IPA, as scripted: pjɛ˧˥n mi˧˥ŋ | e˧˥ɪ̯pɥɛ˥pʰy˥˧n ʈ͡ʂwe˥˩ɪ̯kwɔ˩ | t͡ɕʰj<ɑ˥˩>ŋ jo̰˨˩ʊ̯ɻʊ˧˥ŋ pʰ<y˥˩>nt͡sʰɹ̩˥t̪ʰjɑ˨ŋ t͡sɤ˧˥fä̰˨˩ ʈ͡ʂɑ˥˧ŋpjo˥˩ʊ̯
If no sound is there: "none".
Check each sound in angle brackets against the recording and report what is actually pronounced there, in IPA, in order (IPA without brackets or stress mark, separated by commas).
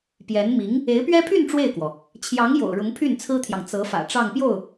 ɑ˧˥, y˥˩